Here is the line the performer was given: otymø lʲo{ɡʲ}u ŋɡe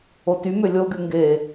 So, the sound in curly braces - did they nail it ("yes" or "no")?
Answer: yes